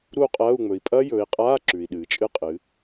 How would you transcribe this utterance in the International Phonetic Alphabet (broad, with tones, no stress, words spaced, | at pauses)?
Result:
ɾu˥˧qʼɐː˧˥˧u̯ŋ͡mɵ˩˧i̯ pʼɐ˦˥jɵː˩˧i̯qʼaː˧˥˧ ǁʉ˩i̯ɗɨː˩t͡ʃʼɨ˦˥qʼɨ˩˧